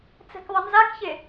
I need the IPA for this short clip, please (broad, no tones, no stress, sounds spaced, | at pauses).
t͡s ɛ̤ k ðˤ ʌ n z a k ç e